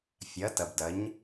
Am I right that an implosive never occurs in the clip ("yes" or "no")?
yes